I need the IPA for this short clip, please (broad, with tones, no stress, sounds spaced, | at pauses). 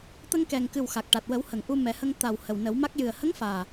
t̪ ə˧ ŋ k ɛ˨˩ ŋ k ɨ˨˩ w x a˨˩ k̚ ʈ a˨˩ t̚ w ə˨˩˦ w h ə˨˩˨ ŋ ʔ u˧ m ɛ˨˩˦ h ə˧ ŋ t̪ a˨˩ w h ə˨˩ w n ə˨˩˦ w m a˦˥ k̚ j ɨ˨˩ ə̯ h ə˧˥ ŋ f aː˨˩